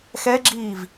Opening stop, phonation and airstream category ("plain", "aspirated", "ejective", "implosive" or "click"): click